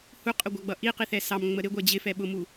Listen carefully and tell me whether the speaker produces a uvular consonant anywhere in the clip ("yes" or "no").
yes